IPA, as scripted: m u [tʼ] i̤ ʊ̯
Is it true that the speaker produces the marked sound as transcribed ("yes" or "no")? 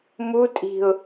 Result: yes